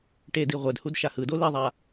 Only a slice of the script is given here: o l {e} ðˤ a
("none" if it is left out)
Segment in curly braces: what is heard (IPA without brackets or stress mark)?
i